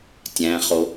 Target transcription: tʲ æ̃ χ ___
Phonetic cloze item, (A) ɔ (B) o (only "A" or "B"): B